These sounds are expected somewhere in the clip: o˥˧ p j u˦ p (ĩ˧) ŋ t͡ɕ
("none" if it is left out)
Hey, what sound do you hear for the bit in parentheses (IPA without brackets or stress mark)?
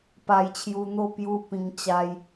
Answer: ĩ˧